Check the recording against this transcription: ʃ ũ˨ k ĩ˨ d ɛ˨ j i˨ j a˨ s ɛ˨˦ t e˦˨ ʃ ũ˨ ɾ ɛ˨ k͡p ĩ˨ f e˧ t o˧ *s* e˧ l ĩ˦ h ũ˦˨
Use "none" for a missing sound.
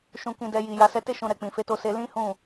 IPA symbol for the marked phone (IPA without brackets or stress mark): s